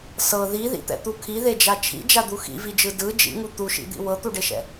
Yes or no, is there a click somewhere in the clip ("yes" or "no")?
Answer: no